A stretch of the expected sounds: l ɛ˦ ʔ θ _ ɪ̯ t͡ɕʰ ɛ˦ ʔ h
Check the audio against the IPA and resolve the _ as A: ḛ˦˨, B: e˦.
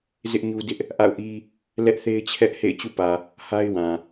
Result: B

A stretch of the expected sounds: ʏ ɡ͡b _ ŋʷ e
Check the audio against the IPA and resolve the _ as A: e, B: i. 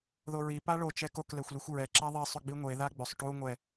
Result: B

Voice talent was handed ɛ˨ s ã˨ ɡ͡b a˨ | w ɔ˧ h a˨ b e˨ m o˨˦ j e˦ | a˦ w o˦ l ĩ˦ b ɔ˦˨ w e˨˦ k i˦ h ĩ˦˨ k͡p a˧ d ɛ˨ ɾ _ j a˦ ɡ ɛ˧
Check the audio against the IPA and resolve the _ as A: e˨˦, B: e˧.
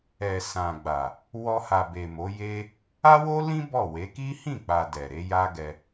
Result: A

